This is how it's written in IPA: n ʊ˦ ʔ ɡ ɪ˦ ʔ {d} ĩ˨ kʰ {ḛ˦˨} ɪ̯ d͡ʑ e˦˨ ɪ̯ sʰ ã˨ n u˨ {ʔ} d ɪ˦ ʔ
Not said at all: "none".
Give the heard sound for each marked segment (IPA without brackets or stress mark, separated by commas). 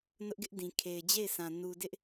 d, e˨, none